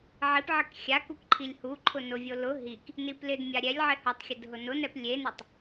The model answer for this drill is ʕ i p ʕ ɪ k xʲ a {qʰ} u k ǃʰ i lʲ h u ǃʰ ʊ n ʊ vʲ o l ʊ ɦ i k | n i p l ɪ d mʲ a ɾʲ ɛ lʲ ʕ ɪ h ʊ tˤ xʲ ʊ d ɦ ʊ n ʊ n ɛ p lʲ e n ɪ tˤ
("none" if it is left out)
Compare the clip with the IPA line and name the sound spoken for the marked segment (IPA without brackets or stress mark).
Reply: k